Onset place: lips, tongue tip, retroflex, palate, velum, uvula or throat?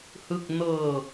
throat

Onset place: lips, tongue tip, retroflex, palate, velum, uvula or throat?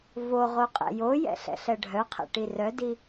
lips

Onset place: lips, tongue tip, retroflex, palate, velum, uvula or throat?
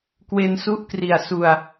velum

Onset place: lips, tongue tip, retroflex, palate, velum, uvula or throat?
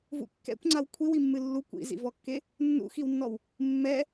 lips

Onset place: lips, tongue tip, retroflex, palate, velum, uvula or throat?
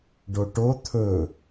retroflex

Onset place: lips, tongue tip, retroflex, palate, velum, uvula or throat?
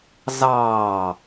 tongue tip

